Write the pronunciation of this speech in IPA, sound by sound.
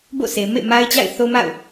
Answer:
b o̰˦˨ sʰ e˨ m ḛ˦˨ m a˦ ɪ̯ t͡ɕ a̰˦˨ ɪ̯ θ o˦ m a̰˦˨ ʊ̯

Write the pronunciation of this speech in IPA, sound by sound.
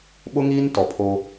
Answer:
ɓ ʊ˦ ŋ iː˦ n t ɔ˨ pʰ o˦

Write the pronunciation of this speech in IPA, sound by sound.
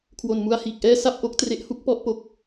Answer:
kʰ w o˨˩ n m u˧ a̯ h iː˨˩ k̚ ʔ ɛː˥˩ s a˥˩ p̚ ʔ o˦˥ k̚ t r e˦˥ ʔ h u˦˥ k̚ p ɔ˥˩ ʔ p o˨˩ k̚

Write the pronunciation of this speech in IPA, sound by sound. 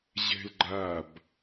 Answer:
ʑ ɛ̤ l ɡ͡ǃ a b

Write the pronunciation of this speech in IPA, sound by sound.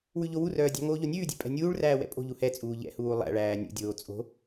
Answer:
w ʉ ʎ o w u r œː dʲ ɑ̤ ŋ oː ʎ o nʲ ʉː dʲ ɛ̤ pʼ ɛ̤ nʲ uː ɭ r æː w ɛ̰ pʼ o̤ ʎ u h ɛ t͡sʼ uː ʎ ɛ̰ h uː lˠ æ̰ ɭ æː nʲ ṵ dʲ oː t͡sʼ o̤

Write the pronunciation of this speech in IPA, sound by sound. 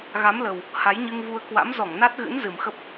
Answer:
ɣ a˨˦ m l ə˨˩ w | h a˨˦ j ɲ ɨ˧ ŋ v u˧ ə̯ k w a̰˧˥ m z ɔ˧˩ ŋ n a˦˥ t̚ ɣ ɨ̰˧˥ n z ɨ˨˩ m x ə˦˥ p̚

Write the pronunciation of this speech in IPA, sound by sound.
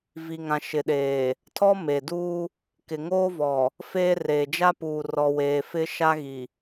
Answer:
v i˨ ŋ ã˨ ʃ ɪ˨ ɗ eː˨ | tʰ ɔ˦ m e˨ d uː˦ | k ɪ˨ ŋ oː˦ v ɔ˨ | f eː˦ r eː˨ d͡ʒ a˦ p uː˨ r ɔ˨ w eː˨ f ɪ˦ ʃ a˦ ɣ i˨

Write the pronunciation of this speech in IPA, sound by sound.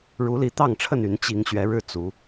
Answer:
ɻ u˨˦ l i˨˦ t̪ ɑ˥˨ ŋ ʈ͡ʂʰ ə˥˨ n y˨˦ n t͡ɕ i˨˦ ŋ ɕ ɥ ɛ˨˦ ɻ ɻ̩˥˨ t͡s u˨˦

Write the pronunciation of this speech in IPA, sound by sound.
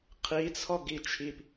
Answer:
qʰ i t͡sʰ ɔ ɡ i t͡ʃʰ i p

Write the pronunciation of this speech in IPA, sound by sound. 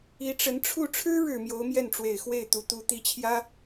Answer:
i˧˥ ʈ͡ʂ ə˧˥ n ʈ͡ʂʰ u˥˩ ʈ͡ʂʰ ɻ̩˥ ɻ ɻ̩˨˩ m j o˧˥ ʊ̯ m j ɛ˥˩ n ʈ͡ʂ w e˨˩ ɪ̯ x w e˥˩ ɪ̯ t̪ u˧˥ t̪ u˧˥ t̪ i˧˥ t͡ɕʰ j ä˥

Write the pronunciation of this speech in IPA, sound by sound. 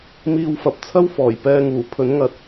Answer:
m iː˧ w f ɐ˨ p̚ t͡sʰ ɐ˥ w f ɔː˨˩ j p ɛː˧ ŋ uː˨˩ pʰ ɵ˨˥ n ŋ ɐ˧ t̚

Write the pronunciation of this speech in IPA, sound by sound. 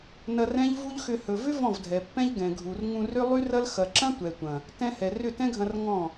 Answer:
n ɐ˧ r ɛ̃˦ ʎ v u˦ ʎ x ʏ˧ h ɵ˨ v ʏ˦ v ɔ̃˦˨ v dʱ ɛ˨ pː ɛ̃˦ ʎ ɡ ɛ̃˨ ɡʱ u˨ r ŋ ũ˧ r ʏ˦ lˠ y˦ r ɐ˦ l x ɐ˨ ǁ ɐ̃˦ tʷ ɛ˨ tʷ ɐ̃˨ | t ɛ̃˦ h ɛ˨ r ʏ˦˨ t ɛ̃˦ ɡʱ ɐ̃˧ r ŋ ɔ̃˦˨

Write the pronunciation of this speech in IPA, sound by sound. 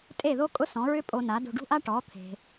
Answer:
tʼ e˥˩ ð o˥ kʼ ʊ˥ s ɔ̃˩˥ ɹ ʏ˥ pʼ o˧ n a˩˥ d o̤˧ ɖ ṳ˥ ʔ a˥ ʈ ɔ˩˥ t̪ʰ e̤˩

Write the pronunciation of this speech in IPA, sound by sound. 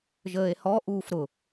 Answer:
ʒ əː e̯ h ɔ ʔ uː f ɾ ʊ

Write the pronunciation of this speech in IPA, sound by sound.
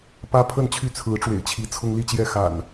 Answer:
p ä˦ pʰ ə˥˨ n t͡ɕʰ y˥˨ t͡sʰ ɹ̩˨˦ ʈ͡ʂ w ḛ˨˩ ɪ̯ t͡ɕʰ i˨˦ t͡sʰ ʊ˦ ŋ l i˥˨ t͡ɕ j ɛ˥˨ x a̰˨˩ n

